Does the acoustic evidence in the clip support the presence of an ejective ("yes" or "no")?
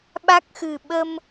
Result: no